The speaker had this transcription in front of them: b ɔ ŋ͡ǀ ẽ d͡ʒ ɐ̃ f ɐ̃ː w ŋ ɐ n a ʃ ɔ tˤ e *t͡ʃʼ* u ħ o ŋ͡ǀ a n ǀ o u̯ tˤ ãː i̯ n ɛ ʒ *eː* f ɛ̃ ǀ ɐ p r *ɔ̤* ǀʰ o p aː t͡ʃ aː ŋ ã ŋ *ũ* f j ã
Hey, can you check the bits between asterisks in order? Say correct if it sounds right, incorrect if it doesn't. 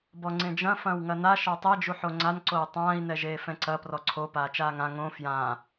incorrect, correct, incorrect, incorrect

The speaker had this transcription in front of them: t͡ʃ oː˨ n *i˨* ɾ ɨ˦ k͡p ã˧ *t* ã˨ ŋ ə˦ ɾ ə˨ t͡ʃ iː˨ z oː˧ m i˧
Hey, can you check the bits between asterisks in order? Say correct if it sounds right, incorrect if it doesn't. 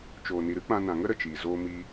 correct, incorrect

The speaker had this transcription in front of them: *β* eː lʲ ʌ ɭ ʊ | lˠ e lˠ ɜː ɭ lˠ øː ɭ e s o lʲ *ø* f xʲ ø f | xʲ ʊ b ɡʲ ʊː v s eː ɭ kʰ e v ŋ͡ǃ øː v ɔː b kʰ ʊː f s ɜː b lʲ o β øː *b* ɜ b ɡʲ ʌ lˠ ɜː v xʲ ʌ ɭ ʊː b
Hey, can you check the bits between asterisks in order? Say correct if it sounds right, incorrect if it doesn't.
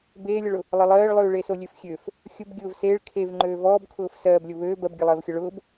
incorrect, correct, correct

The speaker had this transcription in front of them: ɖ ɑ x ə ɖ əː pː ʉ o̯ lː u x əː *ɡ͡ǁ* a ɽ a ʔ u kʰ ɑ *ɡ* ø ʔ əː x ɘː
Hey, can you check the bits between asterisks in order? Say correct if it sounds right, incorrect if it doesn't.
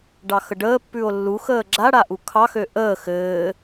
correct, incorrect

